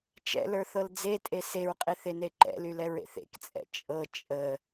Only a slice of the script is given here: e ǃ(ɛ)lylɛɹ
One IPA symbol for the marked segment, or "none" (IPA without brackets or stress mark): ɛ̰